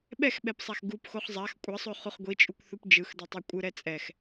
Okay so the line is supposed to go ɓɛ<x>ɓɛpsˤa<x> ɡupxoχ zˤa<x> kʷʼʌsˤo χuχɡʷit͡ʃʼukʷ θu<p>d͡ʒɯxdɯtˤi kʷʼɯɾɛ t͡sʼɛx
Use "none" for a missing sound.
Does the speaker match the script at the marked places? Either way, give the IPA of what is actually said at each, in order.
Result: x, x, x, p

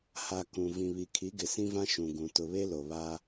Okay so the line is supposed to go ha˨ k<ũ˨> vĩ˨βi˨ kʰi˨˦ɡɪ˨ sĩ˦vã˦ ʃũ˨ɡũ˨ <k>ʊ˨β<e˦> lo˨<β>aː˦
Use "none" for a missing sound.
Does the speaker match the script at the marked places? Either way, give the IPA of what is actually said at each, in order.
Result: ũ˨, t, e˦, β

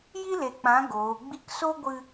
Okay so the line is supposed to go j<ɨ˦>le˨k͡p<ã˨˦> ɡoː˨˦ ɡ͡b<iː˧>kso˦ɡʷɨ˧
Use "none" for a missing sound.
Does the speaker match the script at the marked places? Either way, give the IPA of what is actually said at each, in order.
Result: i˦, ã˨˦, i˧

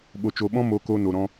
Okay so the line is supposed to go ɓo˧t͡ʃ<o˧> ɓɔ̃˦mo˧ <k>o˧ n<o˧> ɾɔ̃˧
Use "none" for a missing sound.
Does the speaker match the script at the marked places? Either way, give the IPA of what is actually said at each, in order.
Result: o˧, k, o˧

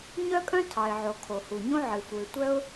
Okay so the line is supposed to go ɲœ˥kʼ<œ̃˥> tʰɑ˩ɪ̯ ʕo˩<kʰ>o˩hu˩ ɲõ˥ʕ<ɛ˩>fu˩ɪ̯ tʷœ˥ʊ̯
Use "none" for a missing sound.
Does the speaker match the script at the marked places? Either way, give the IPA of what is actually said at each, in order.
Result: œ̃˥, kʰ, ɨ˩

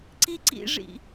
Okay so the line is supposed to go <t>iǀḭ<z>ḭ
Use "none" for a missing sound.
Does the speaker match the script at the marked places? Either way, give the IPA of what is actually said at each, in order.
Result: ǀ, ʐ

